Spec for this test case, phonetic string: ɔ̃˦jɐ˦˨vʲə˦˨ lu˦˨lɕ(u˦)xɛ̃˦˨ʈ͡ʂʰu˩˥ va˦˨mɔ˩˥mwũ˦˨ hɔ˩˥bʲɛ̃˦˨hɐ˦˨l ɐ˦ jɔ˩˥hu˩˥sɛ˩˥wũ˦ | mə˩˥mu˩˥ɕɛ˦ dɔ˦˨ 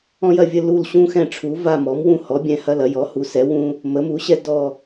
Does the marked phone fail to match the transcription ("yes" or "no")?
yes